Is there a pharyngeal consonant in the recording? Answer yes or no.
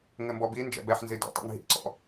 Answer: yes